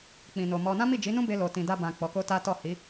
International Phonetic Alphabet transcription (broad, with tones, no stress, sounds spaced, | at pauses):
k͡p ĩ˨ n o˨ m ɔ˧ n ã˦ m i˦˨ d͡ʒ i˨˦ n ũ˦ b e˧ l o˨ t ĩ˨ d a˧ b ã˨ k͡p ɔ˨˦ k o˦ t a˦ t ɔ˦˨ h i˨˦